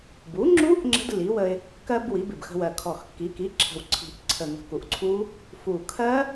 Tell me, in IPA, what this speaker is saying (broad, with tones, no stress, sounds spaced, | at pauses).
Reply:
b u˩˥ ŋ͡ǁ u˦˥ ʔ ŋ͡ǁ ə̤˦˥ d lː i˩˥ w ə˧ ɪ̯ | k ɜ˧ b w i˩˥ b ɪ˨˩ b x ə̤˧ w ɜ˨˩ kʰ ɔ˨˩ x kː i˩˥ k i˩˥ ǁʰ ə̤˨˩ w ǀʰ i̤˨˩ ʔ ǀʰ ə˨˩ ŋ ə̤˨˩ k u˨˩ ʔ ǀʰ u˦˥ | f u˨˩ kʰ ɜ˦˥